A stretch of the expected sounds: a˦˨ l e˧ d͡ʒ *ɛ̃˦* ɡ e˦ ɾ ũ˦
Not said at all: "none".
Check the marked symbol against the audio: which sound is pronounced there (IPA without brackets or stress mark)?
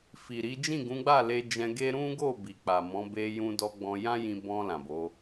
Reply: ɛ̃˧